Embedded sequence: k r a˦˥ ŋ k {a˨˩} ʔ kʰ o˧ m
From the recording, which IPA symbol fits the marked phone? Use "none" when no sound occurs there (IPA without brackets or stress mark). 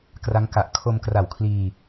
a˨˩